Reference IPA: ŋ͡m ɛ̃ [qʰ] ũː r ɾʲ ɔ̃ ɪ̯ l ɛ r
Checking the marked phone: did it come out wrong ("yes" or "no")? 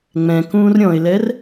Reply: yes